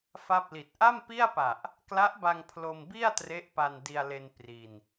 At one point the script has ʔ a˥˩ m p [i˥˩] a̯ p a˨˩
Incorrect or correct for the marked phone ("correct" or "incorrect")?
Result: correct